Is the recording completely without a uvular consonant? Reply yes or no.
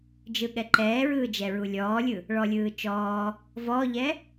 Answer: yes